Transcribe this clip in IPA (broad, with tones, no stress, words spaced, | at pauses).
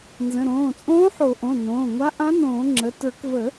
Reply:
nzə̃˩˧˩ɾõː˩˧˩ t͡sʼõː˧˥ħo˨˩˦ʔõ˩˧˩ nõː˩˧˩ŋʷa˧˥ ʔã˧˥nõː˨˩˦ŋ͡ǁə˩˧˩ tə˞˨˩˦kvə˨˩˦